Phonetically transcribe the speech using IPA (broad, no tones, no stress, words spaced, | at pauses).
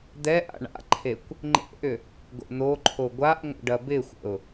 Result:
d̪ɛʔa̰ ɳa̰ǃʰekʷ | ŋ͡ǃḛʔʏ | ɡo̰n̪oǃʰo ɡʷaʔŋʷə̰ ɖɐbɪxʷə̰ʊ̯